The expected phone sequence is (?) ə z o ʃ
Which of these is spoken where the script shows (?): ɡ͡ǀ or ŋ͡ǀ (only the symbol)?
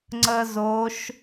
ŋ͡ǀ